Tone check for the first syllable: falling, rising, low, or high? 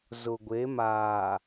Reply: low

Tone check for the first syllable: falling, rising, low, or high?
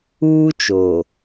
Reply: high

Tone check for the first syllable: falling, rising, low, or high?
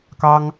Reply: high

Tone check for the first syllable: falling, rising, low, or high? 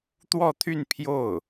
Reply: falling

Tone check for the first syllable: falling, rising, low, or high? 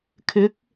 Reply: rising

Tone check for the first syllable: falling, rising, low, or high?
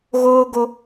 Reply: high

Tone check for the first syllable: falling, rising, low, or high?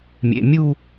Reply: low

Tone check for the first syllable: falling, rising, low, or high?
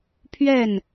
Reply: falling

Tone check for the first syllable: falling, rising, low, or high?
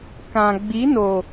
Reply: low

